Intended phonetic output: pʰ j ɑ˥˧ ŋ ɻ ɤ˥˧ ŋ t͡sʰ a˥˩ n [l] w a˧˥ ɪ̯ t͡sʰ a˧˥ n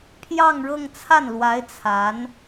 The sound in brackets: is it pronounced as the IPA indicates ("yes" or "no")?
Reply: yes